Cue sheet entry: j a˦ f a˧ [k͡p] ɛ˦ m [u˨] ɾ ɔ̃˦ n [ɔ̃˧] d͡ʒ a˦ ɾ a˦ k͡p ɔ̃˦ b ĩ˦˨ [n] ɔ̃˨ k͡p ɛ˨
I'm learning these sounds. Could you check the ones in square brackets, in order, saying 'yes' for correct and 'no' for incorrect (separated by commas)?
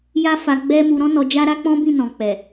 no, no, no, yes